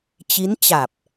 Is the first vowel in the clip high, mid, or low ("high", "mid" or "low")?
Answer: high